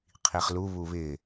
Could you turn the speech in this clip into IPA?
qʰiχlu βuβɪ

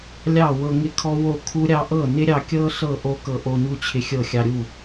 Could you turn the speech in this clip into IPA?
lʲɑ˥˩wɤ˧ ŋɪ˦˥kʰɔ˦˥ wo˥˩kʰu˦˥ɾʲɑ˦˥ ʔɤ˥˩nɪ˦˥ɾʲɑ˧kʲɤ˦˥ ɬɤ˥˩ ʔo˦˥kɤ˧ʔo˧ɲu˥˩ t͡ɕʰɪ˧xʲɤ˥˩ xʲɑ˧ɾʲu˥˩

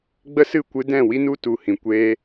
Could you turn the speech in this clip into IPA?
ɡ͡bə˦sɨ˦˨kʷɨ˧dɛ̃˦˨ wi˦nu˦tu˨ hĩ˨kʷeː˦

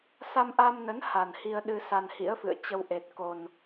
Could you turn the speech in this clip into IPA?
sa˧mʔa˧mnə˨˦n ha˨˩nhi˧ə̯ ɗɨ˧ sa˧nhḭ˧˥ə̯fɨ̰˧˨ə̯ t͡ɕə˧w ʔe˨˩t̚ko˨˩n

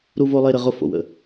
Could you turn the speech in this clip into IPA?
ɾu˦vo˦lˠe˦ ɾə˦ʁʊ˦ fo̰˨wə̰˦

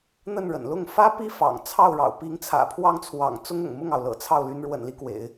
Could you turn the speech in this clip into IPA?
n̪ə˥˩nɻə̰˨˩nlʊ˥˩ŋ fä˥pi˥ fɑ̰˨˩ŋt͡sʰɑ˥˩ʊ̯ɻɑ̰˨˩ʊ̯ pi˧˥ŋ t͡sʰä̰˨˩pʰwɑ˥˩ŋt͡sʰwɑ̰˨˩ŋ t͡sʊ˥ŋʊ̰˨˩ŋmʊ˥˩ŋɑ˩ʊ̯ lɤ̰˨˩t͡sʰɑ˥˩ʊ̯ly˧˥n ɻwə̰˨˩nli˦kwḛ˨˩˦ɪ̯

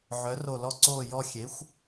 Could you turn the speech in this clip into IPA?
ʕœ˩˥ro˧˩lɔ˥˨ǀoː˥˨ jɔ˥˨ xʲe˩˥xʷ

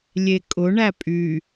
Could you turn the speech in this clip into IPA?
lʲekʼʊ ɳæpʼy

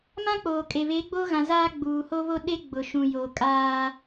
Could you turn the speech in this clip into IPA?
mã˦k͡poː˨kʼe˨ βe˨˦ɡ͡bo˦ɣã˨ zaː˦ ɡ͡buː˨ho˦βo˦ ɗe˦ɡ͡bʊ˨ ʃũ˨joː˨ kʼaː˦

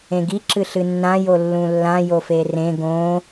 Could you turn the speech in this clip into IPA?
ẽɡi ǁɨɬɨnːã jolːũlːã joferẽ ɡõ

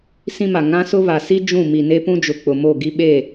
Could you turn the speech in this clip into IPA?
sĩ˦ma˨ ŋã˦sʊ˦ βa˨si˦ d͡ʒũ˦˨ mi˨ne˦pũ˦d͡ʒʊ˨ k͡pʊ˨mo˦˨ɡi˦ ɓe˦˨

